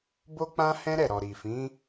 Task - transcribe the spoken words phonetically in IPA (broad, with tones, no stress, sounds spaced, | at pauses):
b o˦ k͡p ã˦ h ɛ̃˦ ɾ ɛ˦˨ ɾ ɔ˨ ɾ i˨ f ĩ˨˦